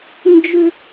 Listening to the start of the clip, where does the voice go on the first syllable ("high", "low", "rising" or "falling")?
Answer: high